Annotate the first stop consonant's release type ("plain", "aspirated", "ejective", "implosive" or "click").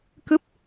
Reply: plain